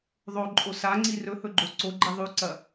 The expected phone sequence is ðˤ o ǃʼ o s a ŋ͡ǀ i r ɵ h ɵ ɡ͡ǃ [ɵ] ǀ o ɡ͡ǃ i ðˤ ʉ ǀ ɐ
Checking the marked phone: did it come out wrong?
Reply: yes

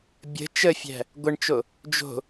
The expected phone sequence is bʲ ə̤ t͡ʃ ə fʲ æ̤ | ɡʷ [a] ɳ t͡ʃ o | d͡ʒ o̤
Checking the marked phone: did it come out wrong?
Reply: yes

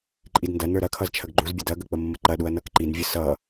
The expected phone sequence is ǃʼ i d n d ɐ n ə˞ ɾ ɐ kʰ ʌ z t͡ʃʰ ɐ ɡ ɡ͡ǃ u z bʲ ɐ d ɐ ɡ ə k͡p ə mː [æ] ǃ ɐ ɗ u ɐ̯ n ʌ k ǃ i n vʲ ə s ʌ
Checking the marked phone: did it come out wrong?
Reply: yes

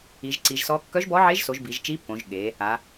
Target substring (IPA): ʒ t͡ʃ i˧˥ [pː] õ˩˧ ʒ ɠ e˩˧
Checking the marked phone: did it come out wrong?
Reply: no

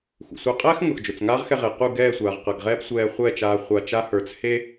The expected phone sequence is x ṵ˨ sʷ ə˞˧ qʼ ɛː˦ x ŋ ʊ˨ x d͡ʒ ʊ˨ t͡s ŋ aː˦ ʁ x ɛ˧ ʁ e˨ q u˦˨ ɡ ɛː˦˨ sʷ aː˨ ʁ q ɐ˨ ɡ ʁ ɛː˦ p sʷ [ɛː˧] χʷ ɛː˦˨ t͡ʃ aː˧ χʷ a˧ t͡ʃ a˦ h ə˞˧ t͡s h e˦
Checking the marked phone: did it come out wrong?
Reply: no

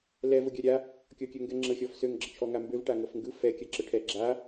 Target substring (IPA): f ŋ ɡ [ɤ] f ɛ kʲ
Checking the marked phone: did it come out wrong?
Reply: yes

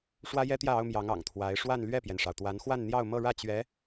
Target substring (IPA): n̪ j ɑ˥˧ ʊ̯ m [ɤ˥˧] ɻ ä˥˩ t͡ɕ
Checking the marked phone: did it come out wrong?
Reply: no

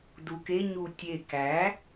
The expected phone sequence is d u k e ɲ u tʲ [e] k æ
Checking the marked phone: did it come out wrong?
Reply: no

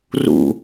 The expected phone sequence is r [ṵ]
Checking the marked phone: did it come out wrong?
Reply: no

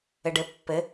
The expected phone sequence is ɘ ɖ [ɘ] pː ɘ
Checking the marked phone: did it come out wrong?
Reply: no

